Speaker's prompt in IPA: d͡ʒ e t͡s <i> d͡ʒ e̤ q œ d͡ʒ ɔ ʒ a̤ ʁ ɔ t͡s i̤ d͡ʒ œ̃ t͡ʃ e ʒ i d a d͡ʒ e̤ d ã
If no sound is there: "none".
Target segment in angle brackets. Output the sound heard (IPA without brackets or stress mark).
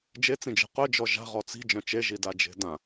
ĩ